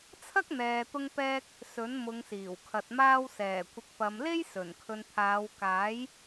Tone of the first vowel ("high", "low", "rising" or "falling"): high